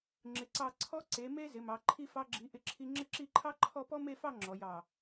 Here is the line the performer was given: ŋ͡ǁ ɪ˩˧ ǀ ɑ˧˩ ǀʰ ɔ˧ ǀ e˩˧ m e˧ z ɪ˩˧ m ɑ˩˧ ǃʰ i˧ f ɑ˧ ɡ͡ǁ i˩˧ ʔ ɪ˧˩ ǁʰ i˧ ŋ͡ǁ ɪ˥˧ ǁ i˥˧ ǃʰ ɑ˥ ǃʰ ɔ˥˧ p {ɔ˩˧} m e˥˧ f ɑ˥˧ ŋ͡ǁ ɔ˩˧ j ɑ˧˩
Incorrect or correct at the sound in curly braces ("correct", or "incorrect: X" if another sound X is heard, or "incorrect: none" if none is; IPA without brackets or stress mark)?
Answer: incorrect: ɔ˥